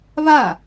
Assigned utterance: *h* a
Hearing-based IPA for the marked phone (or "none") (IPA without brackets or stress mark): β